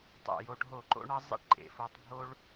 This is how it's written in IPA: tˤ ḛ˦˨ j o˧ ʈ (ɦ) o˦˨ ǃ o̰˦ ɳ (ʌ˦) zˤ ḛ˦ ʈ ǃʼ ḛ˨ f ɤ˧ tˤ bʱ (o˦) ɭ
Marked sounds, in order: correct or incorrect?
correct, correct, correct

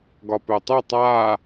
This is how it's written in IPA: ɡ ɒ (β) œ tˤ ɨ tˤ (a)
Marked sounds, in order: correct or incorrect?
incorrect, incorrect

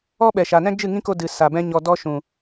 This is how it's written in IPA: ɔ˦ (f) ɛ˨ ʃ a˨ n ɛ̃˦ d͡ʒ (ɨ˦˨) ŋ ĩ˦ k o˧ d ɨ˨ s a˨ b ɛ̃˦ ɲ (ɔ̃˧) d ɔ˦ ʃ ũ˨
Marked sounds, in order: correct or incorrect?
incorrect, correct, incorrect

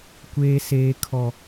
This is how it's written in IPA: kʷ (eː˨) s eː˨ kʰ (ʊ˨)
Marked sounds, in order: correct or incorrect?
correct, incorrect

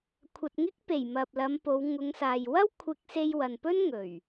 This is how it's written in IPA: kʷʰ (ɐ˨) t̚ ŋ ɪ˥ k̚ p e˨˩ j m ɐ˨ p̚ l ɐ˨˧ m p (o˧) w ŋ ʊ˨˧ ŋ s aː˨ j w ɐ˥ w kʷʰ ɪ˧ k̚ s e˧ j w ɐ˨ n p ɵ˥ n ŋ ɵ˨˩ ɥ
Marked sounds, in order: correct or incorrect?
incorrect, incorrect

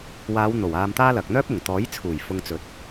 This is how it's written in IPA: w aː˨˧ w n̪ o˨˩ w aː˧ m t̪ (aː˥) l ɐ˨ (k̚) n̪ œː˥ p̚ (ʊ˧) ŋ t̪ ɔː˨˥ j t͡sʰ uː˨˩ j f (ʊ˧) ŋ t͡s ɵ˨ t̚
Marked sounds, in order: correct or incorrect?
correct, correct, incorrect, correct

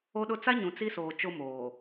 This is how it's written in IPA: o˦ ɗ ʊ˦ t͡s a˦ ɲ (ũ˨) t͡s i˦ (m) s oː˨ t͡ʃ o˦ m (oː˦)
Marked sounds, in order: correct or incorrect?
correct, incorrect, incorrect

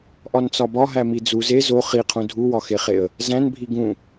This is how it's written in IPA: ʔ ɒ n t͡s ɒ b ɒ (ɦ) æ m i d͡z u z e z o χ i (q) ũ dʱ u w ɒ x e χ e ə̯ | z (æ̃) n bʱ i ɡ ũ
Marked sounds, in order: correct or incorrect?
correct, incorrect, correct

